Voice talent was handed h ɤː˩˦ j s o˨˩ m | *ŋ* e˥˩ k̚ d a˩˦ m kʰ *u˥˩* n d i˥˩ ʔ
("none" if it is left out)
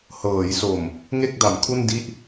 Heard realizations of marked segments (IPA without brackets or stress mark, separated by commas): ŋ, u˥˩